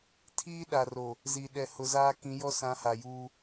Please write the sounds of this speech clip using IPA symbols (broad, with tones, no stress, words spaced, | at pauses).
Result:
tʰiː˦ɗa˨ro˨ | zi˨ɗɛ˨hʊ˨zaː˦ kĩ˨˦jɔ˦sã˨˦ ha˨juː˦